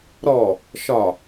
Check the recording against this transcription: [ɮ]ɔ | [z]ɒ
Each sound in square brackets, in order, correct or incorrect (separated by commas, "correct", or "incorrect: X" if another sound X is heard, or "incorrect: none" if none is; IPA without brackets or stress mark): incorrect: ɾ, incorrect: ʃ